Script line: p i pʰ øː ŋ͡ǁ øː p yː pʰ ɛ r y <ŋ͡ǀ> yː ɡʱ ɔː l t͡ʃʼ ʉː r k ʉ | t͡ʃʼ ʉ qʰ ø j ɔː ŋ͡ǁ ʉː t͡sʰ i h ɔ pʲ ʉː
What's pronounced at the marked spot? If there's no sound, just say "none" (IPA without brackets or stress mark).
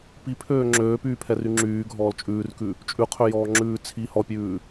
ŋ͡ǁ